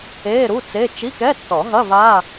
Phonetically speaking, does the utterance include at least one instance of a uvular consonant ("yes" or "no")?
no